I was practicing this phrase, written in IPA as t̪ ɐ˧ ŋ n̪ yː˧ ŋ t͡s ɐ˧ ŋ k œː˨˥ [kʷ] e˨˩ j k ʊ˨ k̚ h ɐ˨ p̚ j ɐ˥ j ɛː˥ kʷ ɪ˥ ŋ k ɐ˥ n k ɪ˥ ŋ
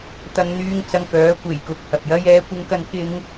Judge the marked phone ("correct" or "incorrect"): correct